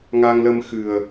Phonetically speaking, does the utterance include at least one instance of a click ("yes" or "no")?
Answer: no